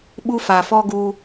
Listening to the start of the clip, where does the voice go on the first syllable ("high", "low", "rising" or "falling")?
high